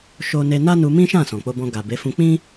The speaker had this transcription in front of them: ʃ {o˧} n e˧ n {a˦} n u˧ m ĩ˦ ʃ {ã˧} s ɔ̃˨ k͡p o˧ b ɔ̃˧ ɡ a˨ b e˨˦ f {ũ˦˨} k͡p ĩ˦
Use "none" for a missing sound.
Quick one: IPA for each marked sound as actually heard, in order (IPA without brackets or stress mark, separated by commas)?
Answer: o˧, a˦, ã˦˨, ũ˧